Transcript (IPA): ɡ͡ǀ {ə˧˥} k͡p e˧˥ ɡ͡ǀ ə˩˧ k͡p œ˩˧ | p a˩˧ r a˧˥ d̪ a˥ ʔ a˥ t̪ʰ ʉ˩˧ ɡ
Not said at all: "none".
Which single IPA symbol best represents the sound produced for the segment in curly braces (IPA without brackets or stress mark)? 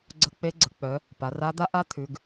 ə˧˥